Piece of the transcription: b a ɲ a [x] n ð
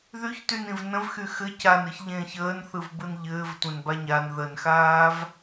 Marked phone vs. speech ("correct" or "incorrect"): incorrect